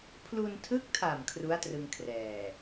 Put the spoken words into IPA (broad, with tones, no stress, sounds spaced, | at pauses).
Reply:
pʰ l u˧ n tʰ ɯ˦˥ k̚ tʰ a˨˩ m kʰ r u˦˥ a̯ t r ɯ˧ ŋ kʰ r ɛː˨˩